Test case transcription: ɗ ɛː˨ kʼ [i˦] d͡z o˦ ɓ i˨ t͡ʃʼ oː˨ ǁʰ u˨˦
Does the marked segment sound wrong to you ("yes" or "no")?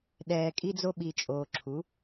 no